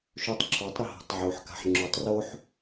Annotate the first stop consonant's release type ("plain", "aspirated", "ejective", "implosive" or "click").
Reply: plain